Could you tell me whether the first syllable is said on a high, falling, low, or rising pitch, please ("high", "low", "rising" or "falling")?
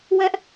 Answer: high